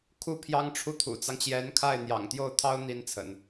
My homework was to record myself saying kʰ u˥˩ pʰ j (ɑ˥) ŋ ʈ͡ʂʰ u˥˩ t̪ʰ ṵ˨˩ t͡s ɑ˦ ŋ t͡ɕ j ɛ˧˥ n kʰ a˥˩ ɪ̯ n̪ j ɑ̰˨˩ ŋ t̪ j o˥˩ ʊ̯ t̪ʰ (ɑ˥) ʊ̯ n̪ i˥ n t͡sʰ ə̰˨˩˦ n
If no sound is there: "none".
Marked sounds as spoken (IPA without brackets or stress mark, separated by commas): ɑ˥, ɑ˥